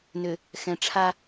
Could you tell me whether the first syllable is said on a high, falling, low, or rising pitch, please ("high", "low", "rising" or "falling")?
low